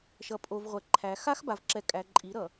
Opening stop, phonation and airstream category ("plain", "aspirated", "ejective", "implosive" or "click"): ejective